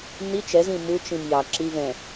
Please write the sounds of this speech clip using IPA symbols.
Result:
n i t͡ʃ ɛ z ĩ m u t͡ʃ ĩ m j ɑ ǁ i v ɛ̃

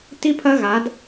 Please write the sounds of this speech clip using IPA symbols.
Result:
t i˦ pʰ ɐ˦ ɣ a˨˦ d

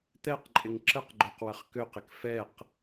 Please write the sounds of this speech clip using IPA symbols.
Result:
t̪ ɛ q ǃʼ ɪ ŋ ǁ ə q ɡ͡ǃ ø q w ə χ k ø q ɪ k f ɛ q

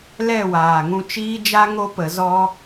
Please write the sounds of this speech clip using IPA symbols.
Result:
l ɛ˦˨ w aː˨ ŋ ũ˧ t͡ʃ iː˦ d͡ʒ a˦ ŋ o˦ p ə˨˦ z ɔ˦

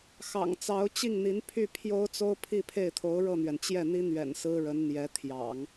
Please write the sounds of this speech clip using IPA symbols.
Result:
x ɑ̰˨˩ ŋ t͡s ɑ˧˥ ʊ̯ t͡ɕ i˥˩ ŋ n̪ i˧˥ n pʰ y˥˩ pʰ j o˥ ʊ̯ t͡s o˥ ʊ̯ pʰ i˥˧ pʰ e˥˩ ɪ̯ t̪ʰ o˧˥ ʊ̯ ɻ ɤ˥˩ n̪ ɥ ɛ˩ n t͡ɕ j ɛ˥˩ n̪ i˥ n̪ ɥ ɛ̰˨˩ n s ɹ̩˥ ɻ ə˧˥ n n̪ j ɛ˧˥ t̪ʰ j ɑ̰˨˩˦ ŋ

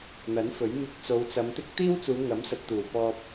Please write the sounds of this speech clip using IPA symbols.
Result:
n̪ ɐ˨˥ n f ɵ˨˥ ɥ m ɪ˧ k̚ t͡s o˨˧ w t͡s ɐ˨˧ m t̪ ɪ˥ k̚ t̪ iː˥ w t͡s uː˨˧ ŋ ɐ˨˥ m s ɐ˨ t̚ t̪ uː˨˩ p ɔː˧ p̚

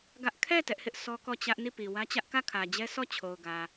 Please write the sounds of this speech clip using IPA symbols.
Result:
ɡ ä˦ ʔ kʰ ɛ˦˨ t ɛ˦ ʔ h ɪ˦ ʔ sʰ ɔ˦ k ɔ˦˨ t͡ɕ ä˦ ʔ n i˦˨ p i˨ w ä˦ t͡ɕ ä˦ ʔ k ä˦˨ kʰ ä˨ d͡ʑ ɛ˦ s ɔ˦˨ t͡ɕʰ o˨ ʊ̯ ɡ ä˨

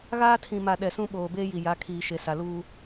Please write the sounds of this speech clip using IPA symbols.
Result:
ɣ aː˦ tʰ ĩ˨ m a˨ ɗ ɛ˨ s ũ˦ ɓ oː˨ b eː˦ j i˨ j a˨˦ kʰ iː˨ ʃ e˨ s a˨ l uː˦

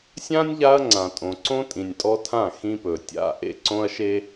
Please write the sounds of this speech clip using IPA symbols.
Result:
sʲ ã˦ nʲ ʎ a˦ ɐ̯ ŋ͡ǀ ã˨ tʼ õ˨ ǀ õ˦ tʼ ĩ˨ nʲ tʼ ɔ˦ tʰ ã˦˨ x ĩ˦ p ɵ˨ tʲ a̰˦ ʔ ḛ˦ ǀ õ˦ ɐ̯ ʃ e˦

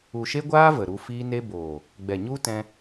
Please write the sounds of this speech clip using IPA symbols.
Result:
u˨ ʃ e˦ ɡʷ aː˦ v ə˨ ɾ u˧ f iː˦ n e˦ b oː˨ | ɡ͡b ɛ˨ ɲ u˦ t ɛ̃˧

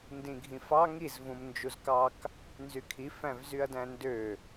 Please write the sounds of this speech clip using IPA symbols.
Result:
n d ĩ ɡʱ ĩ f ɑ ŋ i z v ũ m n d͡ʒ u z k ɑ k | n z y kʰ i f æ̃ v z y ɐ̯ d æ̃ n d ø

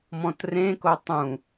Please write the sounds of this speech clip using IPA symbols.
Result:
m ɔ̃ t r ẽ k o tˤ ũ

